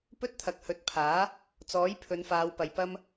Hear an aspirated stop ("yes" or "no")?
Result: yes